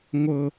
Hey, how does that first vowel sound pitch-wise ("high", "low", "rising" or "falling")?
high